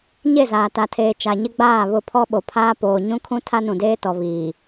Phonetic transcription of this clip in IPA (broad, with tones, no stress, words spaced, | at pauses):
ɲe˦˨zaː˨ta˨tʰeː˨ t͡ʃa˨ɲɪ˦ ɡ͡baː˦˨βʊ˦˨pʰɔ˦ ɓo˨pʰaː˦ poː˨ɲũ˦kʰũ˦ tʰa˦nũ˨deː˦tɔ˨ βiː˨